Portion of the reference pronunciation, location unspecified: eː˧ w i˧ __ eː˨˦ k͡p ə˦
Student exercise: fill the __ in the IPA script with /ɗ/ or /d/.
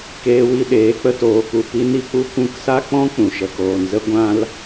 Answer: ɗ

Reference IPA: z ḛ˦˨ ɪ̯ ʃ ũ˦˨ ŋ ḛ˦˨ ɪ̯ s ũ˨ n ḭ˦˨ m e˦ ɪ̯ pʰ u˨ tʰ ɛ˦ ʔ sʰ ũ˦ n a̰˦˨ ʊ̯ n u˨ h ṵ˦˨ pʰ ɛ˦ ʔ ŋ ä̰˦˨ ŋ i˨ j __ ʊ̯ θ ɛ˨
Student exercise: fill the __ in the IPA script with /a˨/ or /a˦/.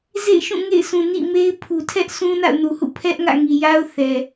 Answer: a˦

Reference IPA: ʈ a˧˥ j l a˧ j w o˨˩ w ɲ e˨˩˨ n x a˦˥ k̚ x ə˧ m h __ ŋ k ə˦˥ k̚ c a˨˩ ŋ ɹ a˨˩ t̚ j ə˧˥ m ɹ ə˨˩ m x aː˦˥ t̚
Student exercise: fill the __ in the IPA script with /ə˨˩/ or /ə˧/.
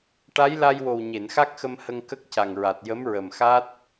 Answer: ə˧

